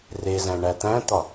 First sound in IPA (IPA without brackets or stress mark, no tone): r